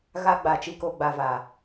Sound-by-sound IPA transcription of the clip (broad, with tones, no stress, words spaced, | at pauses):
ɣa˦ ɡ͡ba˨t͡ʃi˨ko˨ ɡ͡ba˨va˨